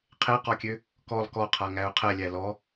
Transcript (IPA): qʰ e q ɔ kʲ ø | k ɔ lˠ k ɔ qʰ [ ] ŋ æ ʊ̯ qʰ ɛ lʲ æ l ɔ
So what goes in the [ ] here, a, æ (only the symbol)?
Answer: a